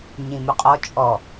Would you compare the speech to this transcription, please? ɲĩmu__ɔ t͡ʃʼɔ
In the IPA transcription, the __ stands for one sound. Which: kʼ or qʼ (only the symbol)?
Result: qʼ